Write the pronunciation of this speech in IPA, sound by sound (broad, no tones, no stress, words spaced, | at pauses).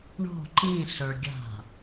ɳo̤ ǃĩɬə˞ɡʲa̤